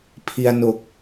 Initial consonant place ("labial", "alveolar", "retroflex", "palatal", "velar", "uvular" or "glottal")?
labial